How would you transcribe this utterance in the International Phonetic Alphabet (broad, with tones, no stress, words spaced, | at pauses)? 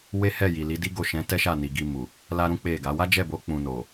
we˦hɛ˦˨ji˨li˨˦ di˦ɡo˦˨ʃɛ̃˨˦tɛ˦ ʃa˦˨ni˨ ɡi˧mu˨ | la˦ɾũ˦k͡pe˦˨ɡa˨˦ wa˦d͡ʒɛ˦˨bo˨˦ k͡pũ˧no˨